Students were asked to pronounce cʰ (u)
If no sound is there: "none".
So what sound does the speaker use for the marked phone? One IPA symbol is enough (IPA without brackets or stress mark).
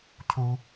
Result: u